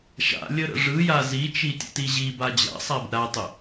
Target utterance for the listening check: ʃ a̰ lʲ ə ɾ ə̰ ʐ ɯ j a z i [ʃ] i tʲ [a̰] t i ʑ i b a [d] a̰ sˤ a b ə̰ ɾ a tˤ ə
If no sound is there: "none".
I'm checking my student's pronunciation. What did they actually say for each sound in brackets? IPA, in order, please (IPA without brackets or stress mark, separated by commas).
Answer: t͡ʃ, ə̰, d͡ʑ